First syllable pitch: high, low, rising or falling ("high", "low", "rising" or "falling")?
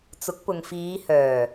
rising